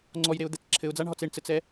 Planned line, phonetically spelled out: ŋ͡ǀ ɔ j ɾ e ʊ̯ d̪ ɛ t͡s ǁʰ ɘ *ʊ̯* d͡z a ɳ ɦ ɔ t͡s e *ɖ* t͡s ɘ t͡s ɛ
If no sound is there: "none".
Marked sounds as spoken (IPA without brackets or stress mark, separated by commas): ʊ̯, ɳ